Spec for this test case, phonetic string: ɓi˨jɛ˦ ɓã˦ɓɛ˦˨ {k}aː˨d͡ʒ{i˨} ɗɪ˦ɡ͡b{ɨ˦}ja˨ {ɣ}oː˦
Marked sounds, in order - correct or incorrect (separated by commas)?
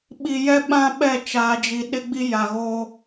incorrect, correct, incorrect, correct